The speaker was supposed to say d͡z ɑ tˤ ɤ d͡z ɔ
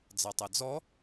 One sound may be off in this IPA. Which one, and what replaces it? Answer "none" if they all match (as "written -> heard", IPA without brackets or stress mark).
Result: none